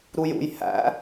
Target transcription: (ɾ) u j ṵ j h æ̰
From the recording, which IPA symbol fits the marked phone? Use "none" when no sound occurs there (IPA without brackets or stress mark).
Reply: ɾ